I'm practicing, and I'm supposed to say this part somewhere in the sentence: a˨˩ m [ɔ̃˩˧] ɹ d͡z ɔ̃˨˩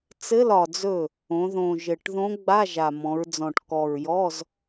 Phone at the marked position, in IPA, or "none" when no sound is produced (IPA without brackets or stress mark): ɔ̃˩˧